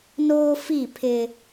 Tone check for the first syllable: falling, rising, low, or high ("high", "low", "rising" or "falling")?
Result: high